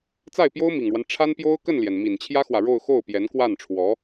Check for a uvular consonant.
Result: absent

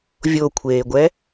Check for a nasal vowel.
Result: absent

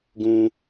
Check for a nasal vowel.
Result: present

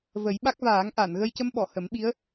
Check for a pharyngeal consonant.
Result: absent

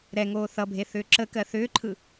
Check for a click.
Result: present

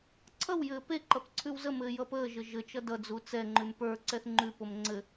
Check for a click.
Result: present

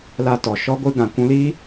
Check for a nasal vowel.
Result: present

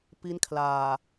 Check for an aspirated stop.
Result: present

